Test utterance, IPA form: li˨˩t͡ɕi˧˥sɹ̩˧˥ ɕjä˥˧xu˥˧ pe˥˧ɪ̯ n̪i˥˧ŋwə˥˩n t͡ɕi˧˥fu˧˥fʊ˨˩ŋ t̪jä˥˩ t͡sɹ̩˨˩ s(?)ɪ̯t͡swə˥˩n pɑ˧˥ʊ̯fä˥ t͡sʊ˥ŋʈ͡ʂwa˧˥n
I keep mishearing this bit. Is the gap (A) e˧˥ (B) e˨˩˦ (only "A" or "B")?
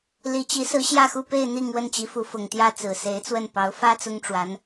A